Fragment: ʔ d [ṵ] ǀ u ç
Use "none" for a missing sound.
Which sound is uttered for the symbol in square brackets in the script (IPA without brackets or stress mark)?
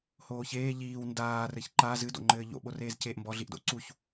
o̰